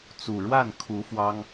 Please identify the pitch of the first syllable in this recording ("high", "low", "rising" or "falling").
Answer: low